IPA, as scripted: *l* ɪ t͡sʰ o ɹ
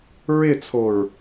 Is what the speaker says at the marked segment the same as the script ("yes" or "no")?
no